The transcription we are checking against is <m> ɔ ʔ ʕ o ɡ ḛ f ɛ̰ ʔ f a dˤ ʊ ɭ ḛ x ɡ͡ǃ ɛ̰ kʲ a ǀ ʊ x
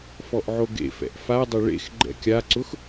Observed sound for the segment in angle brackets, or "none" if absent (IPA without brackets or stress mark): f